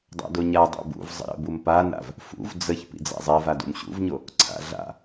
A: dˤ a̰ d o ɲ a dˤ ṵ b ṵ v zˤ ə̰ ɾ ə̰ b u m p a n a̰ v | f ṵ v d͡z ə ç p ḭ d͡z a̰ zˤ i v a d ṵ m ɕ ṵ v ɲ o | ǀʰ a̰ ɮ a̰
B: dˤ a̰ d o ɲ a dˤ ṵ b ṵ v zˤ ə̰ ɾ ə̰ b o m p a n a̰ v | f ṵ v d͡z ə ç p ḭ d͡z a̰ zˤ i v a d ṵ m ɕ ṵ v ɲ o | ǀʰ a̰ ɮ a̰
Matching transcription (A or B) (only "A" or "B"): A